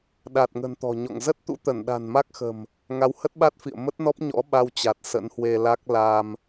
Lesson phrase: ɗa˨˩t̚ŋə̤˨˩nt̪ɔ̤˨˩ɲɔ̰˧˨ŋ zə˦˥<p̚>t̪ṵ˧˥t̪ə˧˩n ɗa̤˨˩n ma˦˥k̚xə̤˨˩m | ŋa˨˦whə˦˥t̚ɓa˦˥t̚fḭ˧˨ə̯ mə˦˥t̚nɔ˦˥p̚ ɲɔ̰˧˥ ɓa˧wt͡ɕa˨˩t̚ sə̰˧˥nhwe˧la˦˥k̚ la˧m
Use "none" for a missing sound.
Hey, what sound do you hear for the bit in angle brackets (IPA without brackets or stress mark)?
t̚